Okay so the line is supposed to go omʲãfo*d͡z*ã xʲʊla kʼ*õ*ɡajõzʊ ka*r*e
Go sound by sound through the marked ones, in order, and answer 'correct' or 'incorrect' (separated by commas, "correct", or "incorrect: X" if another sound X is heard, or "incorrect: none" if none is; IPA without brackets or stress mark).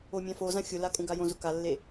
incorrect: z, incorrect: ũ, incorrect: lː